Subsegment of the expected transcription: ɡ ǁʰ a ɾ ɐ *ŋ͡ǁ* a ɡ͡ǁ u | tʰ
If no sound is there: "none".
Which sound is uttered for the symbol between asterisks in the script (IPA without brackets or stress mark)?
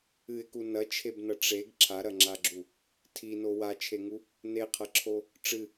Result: ŋ͡ǁ